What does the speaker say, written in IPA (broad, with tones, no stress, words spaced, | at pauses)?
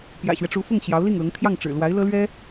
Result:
pjä̰˨˩ɕɥɛ˦ ʈ͡ʂu˧˥fʊ˥˩ŋ ɕjɑ˧˥ʊ̯li˥˩ŋlʊ˧˥ŋ t̪ʰjɑ˥˩ŋʈ͡ʂɻ̩˨˩lwa˧˥ɪ̯ lɤ˥lɥɛ˥